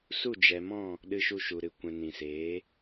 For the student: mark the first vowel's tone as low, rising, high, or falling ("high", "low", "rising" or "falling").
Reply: falling